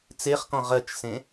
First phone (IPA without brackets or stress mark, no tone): t͡s